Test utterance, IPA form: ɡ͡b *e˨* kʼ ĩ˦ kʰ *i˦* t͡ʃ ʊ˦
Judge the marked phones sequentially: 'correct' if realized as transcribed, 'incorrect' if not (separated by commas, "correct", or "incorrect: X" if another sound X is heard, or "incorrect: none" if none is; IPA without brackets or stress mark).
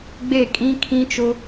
incorrect: e˦˨, incorrect: ĩ˦